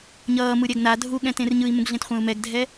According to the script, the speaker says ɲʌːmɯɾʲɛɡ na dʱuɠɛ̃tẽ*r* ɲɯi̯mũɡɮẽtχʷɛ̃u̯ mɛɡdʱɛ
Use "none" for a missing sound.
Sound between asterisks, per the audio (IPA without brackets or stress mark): r